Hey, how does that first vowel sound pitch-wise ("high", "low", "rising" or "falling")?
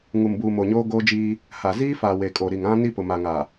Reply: low